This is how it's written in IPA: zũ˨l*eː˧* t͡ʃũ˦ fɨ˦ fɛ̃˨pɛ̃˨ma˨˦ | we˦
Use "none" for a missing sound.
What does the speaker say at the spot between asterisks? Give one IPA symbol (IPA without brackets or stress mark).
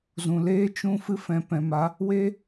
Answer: eː˦